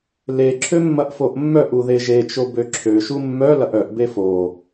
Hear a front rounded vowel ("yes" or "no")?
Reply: yes